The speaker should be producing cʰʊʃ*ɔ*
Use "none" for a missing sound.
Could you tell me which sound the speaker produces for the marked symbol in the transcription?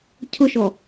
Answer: ɔ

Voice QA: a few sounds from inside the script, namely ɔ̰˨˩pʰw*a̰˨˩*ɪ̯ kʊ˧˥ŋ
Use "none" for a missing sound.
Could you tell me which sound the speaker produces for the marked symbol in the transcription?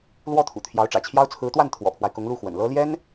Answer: a˦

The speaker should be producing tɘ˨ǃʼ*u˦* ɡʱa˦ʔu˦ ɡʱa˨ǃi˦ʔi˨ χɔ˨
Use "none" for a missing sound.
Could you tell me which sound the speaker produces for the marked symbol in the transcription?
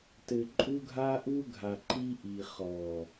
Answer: u˦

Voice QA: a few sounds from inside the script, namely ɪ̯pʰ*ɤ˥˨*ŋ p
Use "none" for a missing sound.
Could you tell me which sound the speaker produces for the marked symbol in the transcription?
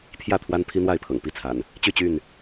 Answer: ɤ̰˨˩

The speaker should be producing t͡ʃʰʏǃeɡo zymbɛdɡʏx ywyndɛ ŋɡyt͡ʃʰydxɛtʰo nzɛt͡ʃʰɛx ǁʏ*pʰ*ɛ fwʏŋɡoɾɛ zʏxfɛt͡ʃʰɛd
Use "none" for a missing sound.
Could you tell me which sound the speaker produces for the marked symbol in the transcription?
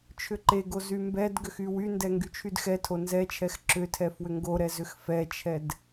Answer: tʰ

